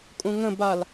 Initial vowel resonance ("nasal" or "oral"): nasal